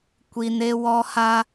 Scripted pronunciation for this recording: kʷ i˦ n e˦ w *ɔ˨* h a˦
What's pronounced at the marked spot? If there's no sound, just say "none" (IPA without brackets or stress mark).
ɔ˦